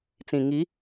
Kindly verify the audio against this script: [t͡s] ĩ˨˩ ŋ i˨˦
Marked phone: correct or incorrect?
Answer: correct